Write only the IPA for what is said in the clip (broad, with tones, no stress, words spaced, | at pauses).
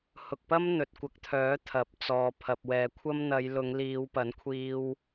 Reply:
hʊ˨k̚pɐ˥m n̪ɵ˨t̚kʷɐ˧k̚t̪ʰœː˨˥ t̪ʰɐ˨˥p̚t͡sɔː˨ pʰɐ˨p̚wɛː˨˧kʷʰɐ˥m n̪ɐ˨˧jlʊ˨˧ŋ liː˨˧wpɐ˨˥nkʷʰiː˧w